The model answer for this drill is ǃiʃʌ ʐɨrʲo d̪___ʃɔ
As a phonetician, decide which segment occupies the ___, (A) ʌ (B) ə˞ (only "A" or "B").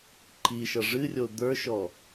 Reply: B